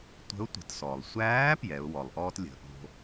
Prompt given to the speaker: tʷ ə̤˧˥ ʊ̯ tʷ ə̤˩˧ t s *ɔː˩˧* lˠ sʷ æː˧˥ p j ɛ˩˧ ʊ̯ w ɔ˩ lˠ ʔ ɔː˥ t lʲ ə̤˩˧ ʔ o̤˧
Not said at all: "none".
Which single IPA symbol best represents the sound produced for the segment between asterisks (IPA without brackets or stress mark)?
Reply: ɔː˩